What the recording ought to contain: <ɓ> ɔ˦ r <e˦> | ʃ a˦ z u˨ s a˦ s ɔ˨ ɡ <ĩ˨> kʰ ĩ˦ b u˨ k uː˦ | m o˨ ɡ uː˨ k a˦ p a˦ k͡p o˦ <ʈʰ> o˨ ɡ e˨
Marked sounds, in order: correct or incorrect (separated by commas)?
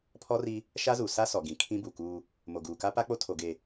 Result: incorrect, incorrect, correct, incorrect